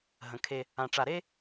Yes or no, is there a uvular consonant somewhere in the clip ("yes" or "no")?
no